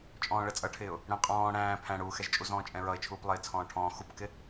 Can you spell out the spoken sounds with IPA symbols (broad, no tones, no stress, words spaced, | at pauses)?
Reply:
t͡ʃʼɔ̃ːɭɜt͡sʼʌʈʰɪːʊ̯ | ɽɛ̃qʼɔ̃ː ɽæ̃ː pʰæ̃ɽuːxɛʒt͡ʃʼuz ɔ̃ːt͡ʃʼɛ̃ɹʌɪ̯t͡ʃʰuːp lˠɪːt͡sʰɔ̃ːʈʰɔ̃ː xupkɪ